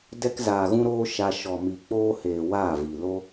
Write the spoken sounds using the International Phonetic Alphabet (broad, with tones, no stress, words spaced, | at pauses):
dɛ˧kzaː˨ɣũ˧ɾoː˧ ʃa˧ ʃɔ˨mi˨k͡poː˧heː˨ waː˦˨vi˨ lo˧